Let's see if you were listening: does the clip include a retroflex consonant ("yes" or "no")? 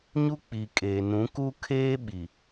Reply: no